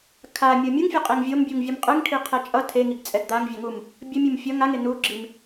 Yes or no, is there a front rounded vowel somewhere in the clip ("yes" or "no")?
no